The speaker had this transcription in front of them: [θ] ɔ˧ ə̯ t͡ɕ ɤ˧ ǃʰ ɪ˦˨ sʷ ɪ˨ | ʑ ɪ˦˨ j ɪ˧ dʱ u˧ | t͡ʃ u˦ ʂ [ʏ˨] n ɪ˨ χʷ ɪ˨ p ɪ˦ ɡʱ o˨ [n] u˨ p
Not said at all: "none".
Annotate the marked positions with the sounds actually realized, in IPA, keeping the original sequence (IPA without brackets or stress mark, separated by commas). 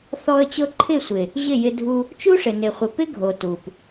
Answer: θ, ɪ˨, t